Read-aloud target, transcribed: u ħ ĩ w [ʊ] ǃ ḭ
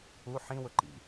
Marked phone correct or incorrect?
correct